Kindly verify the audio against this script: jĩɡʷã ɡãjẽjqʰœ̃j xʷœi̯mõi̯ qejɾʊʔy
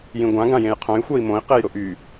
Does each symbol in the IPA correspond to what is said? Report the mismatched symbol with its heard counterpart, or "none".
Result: none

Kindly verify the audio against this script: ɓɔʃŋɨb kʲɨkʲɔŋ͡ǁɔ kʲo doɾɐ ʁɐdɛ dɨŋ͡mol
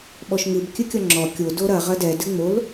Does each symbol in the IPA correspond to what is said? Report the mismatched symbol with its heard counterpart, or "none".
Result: none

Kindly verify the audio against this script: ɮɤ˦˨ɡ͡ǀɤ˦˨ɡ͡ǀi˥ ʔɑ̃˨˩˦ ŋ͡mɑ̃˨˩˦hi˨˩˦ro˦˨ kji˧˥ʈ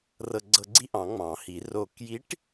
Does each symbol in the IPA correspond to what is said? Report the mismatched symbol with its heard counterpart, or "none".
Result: ɮ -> r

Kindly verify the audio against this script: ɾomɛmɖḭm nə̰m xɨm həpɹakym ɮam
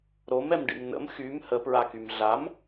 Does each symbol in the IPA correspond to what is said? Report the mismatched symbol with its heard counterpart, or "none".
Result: ɨ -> y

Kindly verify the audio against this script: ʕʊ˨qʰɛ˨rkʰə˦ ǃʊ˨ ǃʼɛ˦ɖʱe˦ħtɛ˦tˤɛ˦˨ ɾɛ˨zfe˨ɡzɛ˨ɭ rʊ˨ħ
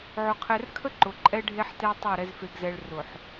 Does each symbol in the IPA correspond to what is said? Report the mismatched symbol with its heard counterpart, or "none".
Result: none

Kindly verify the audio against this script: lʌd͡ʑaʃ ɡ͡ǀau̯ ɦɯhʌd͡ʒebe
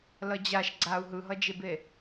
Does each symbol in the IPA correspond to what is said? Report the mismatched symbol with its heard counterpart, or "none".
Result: h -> ɦ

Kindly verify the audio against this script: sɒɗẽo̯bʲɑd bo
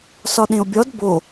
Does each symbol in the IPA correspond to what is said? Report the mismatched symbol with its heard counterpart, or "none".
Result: ɑ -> ɒ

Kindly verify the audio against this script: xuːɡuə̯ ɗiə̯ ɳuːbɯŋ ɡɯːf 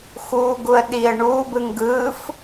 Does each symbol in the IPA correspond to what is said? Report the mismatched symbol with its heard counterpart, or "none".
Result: none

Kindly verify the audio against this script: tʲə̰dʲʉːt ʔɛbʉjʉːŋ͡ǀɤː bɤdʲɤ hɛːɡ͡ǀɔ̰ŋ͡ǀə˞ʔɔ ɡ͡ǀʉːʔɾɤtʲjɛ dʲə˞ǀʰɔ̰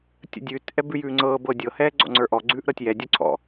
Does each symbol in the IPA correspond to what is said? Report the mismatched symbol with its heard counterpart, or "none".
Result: none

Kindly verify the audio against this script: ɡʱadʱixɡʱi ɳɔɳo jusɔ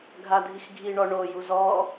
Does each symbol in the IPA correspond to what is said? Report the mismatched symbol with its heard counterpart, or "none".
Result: s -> z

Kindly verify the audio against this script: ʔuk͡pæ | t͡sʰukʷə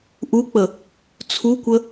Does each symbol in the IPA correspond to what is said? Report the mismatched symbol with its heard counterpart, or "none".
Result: æ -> ə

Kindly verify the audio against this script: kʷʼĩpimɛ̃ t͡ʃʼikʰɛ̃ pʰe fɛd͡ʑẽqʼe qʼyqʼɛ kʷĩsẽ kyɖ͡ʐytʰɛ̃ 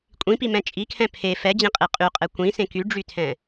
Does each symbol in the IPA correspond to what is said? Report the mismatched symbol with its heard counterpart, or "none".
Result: none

